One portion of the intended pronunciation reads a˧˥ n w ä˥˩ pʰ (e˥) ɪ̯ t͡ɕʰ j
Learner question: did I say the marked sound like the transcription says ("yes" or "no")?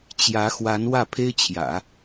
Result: yes